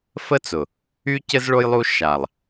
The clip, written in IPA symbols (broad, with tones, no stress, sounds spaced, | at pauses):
f ə˦ t͡s ʊ˨ | y˦ c ɘ˦ z ɭ o˦ j lˠ u˦ ʃ a˨ lˠ